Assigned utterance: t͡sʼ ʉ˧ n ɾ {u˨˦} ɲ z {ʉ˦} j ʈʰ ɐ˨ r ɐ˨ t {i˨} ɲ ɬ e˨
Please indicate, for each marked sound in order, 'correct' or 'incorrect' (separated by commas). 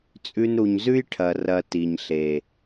incorrect, correct, correct